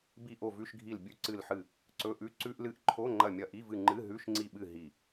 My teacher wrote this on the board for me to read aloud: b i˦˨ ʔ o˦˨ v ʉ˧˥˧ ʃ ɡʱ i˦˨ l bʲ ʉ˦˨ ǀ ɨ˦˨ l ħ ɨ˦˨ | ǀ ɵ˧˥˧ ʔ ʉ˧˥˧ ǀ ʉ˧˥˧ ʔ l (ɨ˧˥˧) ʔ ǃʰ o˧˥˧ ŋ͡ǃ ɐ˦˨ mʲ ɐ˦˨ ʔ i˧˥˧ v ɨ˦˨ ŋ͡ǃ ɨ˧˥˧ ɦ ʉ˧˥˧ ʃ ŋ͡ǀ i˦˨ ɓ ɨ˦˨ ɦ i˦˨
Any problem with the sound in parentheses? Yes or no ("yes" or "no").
no